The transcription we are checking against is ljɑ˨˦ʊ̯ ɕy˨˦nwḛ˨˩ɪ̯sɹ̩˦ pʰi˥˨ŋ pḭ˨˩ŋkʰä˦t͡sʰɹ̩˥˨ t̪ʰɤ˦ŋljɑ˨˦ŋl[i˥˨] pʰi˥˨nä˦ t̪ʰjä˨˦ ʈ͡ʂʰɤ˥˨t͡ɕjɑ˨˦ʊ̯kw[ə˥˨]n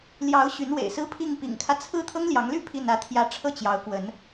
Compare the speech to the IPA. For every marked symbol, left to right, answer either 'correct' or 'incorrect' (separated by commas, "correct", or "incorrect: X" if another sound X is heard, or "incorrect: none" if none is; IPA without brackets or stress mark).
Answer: incorrect: y˥˨, incorrect: ə˨˦